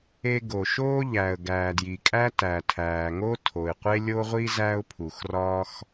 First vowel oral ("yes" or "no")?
yes